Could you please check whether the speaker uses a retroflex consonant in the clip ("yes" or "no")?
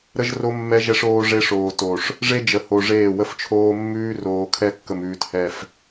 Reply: yes